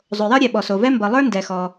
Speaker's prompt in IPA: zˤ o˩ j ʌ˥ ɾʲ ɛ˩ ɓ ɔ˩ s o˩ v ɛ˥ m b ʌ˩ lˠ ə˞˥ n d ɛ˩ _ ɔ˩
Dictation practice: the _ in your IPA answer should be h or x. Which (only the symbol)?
x